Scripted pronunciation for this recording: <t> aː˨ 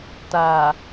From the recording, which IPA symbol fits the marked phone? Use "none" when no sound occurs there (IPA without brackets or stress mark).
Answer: t